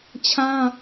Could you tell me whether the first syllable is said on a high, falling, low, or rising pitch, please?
high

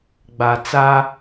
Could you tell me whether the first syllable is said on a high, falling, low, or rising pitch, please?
low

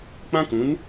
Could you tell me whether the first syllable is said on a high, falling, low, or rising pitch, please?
high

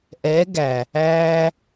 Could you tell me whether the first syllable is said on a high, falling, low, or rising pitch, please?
rising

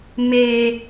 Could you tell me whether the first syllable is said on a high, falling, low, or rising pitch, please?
low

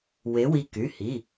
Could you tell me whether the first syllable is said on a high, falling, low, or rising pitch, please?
rising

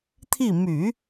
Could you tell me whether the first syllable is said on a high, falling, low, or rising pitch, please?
falling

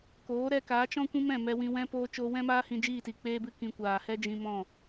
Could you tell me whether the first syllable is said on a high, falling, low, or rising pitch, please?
rising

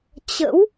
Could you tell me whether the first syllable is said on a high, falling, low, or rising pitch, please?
rising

